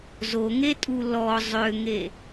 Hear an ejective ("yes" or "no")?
yes